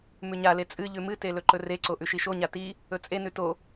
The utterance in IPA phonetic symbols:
m ʉ ɲ a l e t͡sʼ ɨ ʎ ʉ m ɨ t e l ɵ ǃ ɵ r e ǀ o ʔ ʉ ʃ i ʃ o ɲ a t i | ɵ t͡sʼ e n ʉ t o

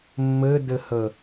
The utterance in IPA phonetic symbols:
mː ɘ d ɘ h ə

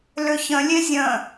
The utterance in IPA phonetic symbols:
l ʏ ç ə̃ lʲ e zʲ ə̃

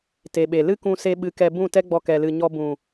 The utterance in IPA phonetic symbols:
t e˨ ɓ e˨ l ɨ˦ k ũ˧ s e˧ ɓ ɨ˨˦ k ɛ˧ b ũ˦˨ t ɛ˦ ɡ͡b ɔ˧ k ɛ˨ l ɨ˨ ɲ ɔ˧ b ũ˨

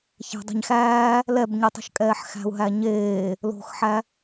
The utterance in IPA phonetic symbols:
ç æ̤ dˤ æ̤ ɲ x æː | l ɛ b ɲ i tˤ o̤ ʃ kʼ ɛː ħ x æ̤ u̯ ɦ æ ɲ eː | l o̤ x ħ æ

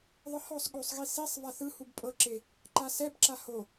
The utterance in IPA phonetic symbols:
ðˤ ɯ h ɔ sˤ ɠ o sˤ ɣ i s i sˤ v a θ ɯ h u b pʼ ɤ ǁ e | ǃ a s ɛ b ǁ a h o

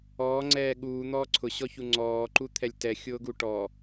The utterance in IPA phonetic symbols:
ɔː ŋ͡ǀ ɛː ɠ uː n̪ ɔː ǀʰ ʊ ɕ ɔ ç u ŋ͡ǀ ɔː ǃ u t̪ʰ ɛ lʲ t ɛ xʲ ʊː ɡ u ʈ ɔ

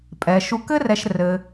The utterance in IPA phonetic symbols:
pʼ ɛ˩ ʃ u˨ k ɘ˦ r ɛ˨ ʃ r ɘ˩

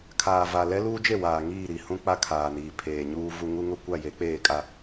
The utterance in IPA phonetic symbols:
kʰ aː˨ v a˨ l ɛ˦ l uː˦ d͡ʒ e˦˨ w aː˨ ŋ iː˦˨ ɾ i˨ h ũ˦ k͡p a˦ kʰ aː˨ n iː˨ pʰ eː˨ ɲ uː˦ v u˦ ŋ u˦ ŋ ʊ˦ kʷ a˦˨ j e˨˦ k͡p eː˦˨ kʼ a˦

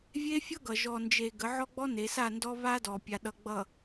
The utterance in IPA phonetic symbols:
vʲ e˦ fʲ ʌ˦ ɡ ʌ˨ ʒ ɔ˨ n d͡ʒ e˨ ɡ ə˨˦ ʕ ɔ˦ ɡ͡b ɔ˦ n e˨˦ s a˦˨ n d ɔ˦ β a˦ d ɔ˨ pʲ a˨ ɗ ʌ˨ ɡ͡b ʌ˨

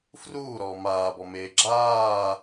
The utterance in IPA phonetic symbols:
f r uː ɾ ɔː m aː b ɔ m eː ɡ͡ǁ aː

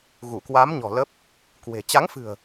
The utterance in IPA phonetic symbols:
ɣ u˧˩ k w a˨˦ m ɲ ɔ̤˨˩ l ə˦˥ p̚ | k w e̤˨˩ t͡ɕ a˨˦ ŋ f ɨ̤˨˩ ə̯

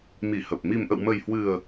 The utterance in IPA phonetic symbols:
m i˧˩ h ə˨˩ p̚ m i˨˩ m ʔ ə̰˧˨ w m ə˨˩ j h w ɨ˨˩ ə̯

